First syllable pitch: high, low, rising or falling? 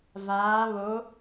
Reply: rising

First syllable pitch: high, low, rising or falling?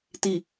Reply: low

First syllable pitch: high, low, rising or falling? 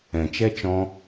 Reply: low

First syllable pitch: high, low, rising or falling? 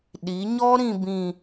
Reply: rising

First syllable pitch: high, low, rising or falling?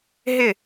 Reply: falling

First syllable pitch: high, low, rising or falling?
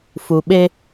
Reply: low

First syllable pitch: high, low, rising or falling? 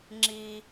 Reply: low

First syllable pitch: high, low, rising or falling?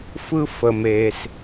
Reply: high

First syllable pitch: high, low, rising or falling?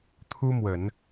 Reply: high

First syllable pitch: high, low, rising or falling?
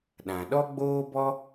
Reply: low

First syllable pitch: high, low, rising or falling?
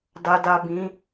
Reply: low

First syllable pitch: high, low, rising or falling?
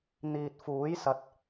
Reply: low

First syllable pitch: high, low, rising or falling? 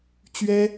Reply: high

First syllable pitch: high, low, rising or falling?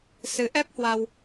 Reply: rising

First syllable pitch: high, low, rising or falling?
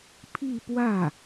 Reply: falling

